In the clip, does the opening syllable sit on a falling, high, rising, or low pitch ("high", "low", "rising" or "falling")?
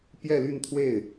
falling